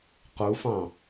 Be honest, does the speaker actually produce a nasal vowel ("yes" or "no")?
yes